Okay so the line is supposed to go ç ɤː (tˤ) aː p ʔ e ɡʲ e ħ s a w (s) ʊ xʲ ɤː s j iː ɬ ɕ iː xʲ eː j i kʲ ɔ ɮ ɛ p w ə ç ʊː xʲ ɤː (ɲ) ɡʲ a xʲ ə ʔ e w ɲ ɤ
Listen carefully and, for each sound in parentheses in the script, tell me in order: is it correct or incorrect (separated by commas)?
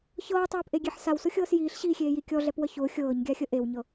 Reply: correct, correct, correct